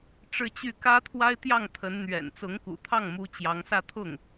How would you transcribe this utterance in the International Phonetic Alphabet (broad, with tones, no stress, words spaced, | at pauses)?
ʈ͡ʂɻ̩˥˧t͡ɕy˥˩ kä˥t̪ʰwa˥ɪ̯t̪jɑ˥˩ŋ t̪ʰə˧˥n n̪ɥɛ̰˨˩n t͡sʊ˧˥ŋkṵ˨˩t̪ʰɑ˥˩ŋmu˧˥ t͡ɕjɑ˧˥ŋsä˥˧t̪ʰʊ˥˩ŋ